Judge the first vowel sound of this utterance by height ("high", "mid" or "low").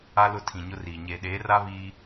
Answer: low